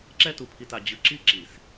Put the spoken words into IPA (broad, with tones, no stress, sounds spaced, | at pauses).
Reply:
ǁ ɛ˦ t u˨ pʰ i˨ t a˨ d͡ʑ ɯ˨ ǁ i˦ ǁ i˨ s